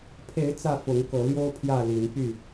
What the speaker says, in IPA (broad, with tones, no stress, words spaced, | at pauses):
pʰe˨˦ɪ̯ t͡sä˥˨ fʊ˨˦ŋkɤ˨˦ljo˦ʊ̯ pʰjä˥˨li˨˦npy˥˨